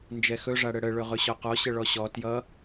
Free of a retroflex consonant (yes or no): no